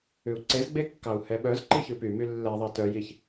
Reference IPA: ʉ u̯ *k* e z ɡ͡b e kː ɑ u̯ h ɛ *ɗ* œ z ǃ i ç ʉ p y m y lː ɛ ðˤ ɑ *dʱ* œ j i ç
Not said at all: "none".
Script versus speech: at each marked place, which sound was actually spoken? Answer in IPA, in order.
ǀ, ɓ, t

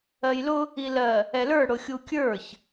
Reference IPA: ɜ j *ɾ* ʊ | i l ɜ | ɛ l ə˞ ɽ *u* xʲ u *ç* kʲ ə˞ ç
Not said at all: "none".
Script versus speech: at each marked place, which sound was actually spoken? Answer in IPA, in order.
l, ʊ, none

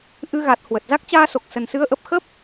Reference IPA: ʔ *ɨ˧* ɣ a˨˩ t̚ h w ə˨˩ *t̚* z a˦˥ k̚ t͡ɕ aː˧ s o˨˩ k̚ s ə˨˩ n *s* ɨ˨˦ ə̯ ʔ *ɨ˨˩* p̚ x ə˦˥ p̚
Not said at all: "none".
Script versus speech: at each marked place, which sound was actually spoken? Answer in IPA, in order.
ɨ˧, t̚, s, ə˨˩

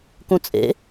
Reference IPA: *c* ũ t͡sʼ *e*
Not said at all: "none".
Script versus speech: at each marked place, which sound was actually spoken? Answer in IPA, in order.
k, ḛ

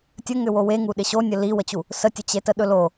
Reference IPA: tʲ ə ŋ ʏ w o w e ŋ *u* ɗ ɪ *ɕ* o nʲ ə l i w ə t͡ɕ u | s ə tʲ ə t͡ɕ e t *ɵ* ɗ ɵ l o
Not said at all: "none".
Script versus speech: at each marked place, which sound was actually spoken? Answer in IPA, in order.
u, ɕ, ə

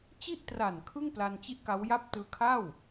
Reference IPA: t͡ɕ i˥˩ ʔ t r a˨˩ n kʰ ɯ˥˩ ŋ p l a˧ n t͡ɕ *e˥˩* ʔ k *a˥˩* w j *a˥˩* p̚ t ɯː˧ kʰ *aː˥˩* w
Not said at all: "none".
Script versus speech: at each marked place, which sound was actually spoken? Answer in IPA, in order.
i˥˩, a˦˥, a˥˩, a˥˩

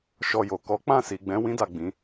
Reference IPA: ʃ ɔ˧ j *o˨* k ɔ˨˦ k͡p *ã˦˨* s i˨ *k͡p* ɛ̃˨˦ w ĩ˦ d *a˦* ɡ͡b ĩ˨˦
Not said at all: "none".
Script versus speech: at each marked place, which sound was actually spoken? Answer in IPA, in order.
o˨, ã˦˨, ɡ͡b, a˦˨

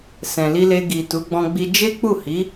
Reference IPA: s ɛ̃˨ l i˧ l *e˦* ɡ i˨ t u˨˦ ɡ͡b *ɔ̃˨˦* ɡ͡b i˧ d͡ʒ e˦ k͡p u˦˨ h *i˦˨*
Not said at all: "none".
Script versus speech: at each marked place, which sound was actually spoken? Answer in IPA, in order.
e˧, ɔ̃˧, i˨˦

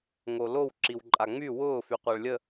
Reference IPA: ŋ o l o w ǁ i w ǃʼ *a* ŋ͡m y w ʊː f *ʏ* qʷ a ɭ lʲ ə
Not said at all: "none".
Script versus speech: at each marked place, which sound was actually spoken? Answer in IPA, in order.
a, y

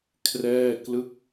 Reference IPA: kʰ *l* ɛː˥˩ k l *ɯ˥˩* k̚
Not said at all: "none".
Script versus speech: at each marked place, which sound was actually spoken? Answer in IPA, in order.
r, ɯ˥˩

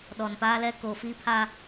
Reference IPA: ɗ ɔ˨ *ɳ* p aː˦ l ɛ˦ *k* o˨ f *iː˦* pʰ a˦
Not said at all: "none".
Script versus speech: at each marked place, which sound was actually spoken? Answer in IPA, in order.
n, k, iː˦

